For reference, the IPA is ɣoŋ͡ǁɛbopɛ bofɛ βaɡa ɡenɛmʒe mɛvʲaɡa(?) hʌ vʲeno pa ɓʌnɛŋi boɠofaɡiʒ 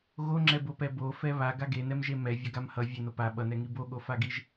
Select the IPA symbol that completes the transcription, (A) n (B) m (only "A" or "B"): B